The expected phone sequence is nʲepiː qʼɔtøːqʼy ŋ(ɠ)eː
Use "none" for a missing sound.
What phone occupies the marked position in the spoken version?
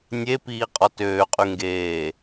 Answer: ɡ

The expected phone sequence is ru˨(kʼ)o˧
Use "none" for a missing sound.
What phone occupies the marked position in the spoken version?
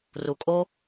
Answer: kʼ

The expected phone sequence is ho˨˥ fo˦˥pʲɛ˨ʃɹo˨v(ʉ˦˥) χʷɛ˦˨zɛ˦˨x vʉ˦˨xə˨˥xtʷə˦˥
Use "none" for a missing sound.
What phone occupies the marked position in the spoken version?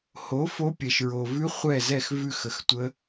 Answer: ʉ˦˥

